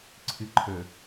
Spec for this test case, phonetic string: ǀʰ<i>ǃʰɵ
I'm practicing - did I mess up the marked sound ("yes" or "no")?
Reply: yes